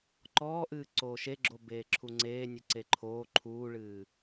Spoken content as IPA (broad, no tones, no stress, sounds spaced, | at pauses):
ǃ ɔː ʔ ɨː ǀ oː ʃ e ɡ͡ǁ o b eː ǁʰ u ŋ͡ǀ eː nʲ ɨ ǀ e ǃʰ oː ǃʰ uː ɭ ɨː